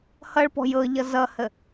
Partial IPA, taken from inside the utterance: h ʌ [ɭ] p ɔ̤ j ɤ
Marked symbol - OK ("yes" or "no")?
yes